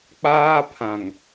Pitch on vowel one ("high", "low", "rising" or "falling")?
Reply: high